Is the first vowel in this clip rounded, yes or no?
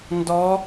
yes